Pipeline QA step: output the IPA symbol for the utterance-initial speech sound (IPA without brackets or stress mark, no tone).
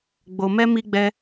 ɡ͡b